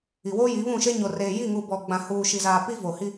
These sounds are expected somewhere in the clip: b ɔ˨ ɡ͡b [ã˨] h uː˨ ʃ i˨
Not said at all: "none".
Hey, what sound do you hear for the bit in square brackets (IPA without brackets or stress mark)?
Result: ã˨